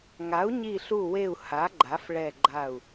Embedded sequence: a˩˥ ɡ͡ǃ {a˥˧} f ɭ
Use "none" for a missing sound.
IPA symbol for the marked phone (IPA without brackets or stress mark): a˩˥